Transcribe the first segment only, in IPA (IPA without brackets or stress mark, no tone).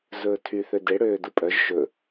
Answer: z